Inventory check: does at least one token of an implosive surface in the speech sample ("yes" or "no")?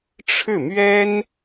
no